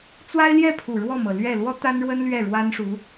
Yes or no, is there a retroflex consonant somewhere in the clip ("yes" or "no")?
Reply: yes